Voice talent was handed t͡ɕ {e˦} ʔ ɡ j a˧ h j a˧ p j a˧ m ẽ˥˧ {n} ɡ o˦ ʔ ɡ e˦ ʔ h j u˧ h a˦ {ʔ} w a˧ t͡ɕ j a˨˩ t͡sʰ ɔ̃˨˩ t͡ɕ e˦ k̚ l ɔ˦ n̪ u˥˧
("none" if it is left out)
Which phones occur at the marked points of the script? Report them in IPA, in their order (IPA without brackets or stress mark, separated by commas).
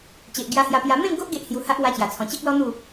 e˨, ŋ, ʔ